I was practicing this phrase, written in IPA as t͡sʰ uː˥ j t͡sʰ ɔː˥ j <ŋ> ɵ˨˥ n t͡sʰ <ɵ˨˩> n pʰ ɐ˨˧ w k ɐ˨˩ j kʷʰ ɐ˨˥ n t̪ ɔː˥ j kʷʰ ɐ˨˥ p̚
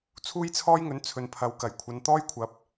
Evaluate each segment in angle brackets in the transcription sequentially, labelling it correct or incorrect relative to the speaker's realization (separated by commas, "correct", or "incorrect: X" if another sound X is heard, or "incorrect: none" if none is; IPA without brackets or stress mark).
correct, incorrect: ɵ˨